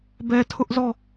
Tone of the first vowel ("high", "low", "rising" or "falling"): low